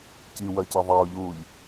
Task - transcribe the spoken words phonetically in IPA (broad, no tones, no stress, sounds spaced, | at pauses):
c i w ɐ c ɐ ðˤ ɐ ʊ̯ ʎ uː ʎ